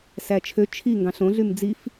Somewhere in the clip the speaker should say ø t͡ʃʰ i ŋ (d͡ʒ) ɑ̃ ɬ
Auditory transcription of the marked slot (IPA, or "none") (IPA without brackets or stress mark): ɡ